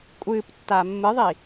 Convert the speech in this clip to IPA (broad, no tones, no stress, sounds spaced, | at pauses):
kʷʼ ɨː p tː aː mː ɨ ðˤ i